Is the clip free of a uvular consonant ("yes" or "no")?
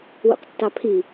no